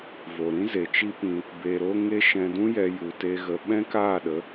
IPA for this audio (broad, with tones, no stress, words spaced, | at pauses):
vo˨ɾĩ˦ ze˨t͡ʃi˦pĩ˧ | be˧ɾo˦ ŋe˦ ʃɛ̃˧dũ˦jɛ˧ ju˨te˧ ɣə˧ ɓɛ̃˦kaː˦˨ɗə˨˦